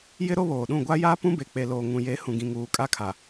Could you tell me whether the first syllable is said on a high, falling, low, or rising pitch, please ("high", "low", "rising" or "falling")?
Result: high